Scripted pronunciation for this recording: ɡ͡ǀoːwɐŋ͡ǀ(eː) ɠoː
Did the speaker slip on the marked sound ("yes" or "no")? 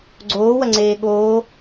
no